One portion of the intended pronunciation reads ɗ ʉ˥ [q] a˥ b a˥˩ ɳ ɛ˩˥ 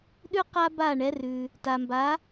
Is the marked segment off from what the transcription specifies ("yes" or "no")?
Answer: no